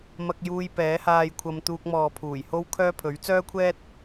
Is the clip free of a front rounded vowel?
no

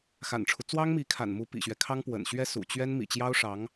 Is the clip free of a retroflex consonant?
no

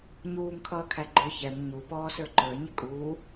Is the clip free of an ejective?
no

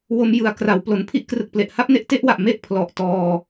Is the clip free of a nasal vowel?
yes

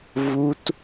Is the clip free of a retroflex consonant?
yes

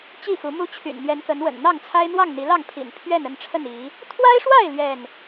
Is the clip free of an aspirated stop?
no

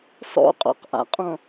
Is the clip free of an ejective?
no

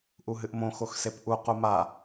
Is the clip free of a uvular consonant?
no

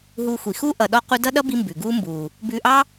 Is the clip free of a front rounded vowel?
yes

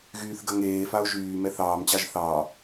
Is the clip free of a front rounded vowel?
no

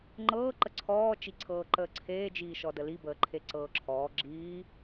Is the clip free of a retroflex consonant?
yes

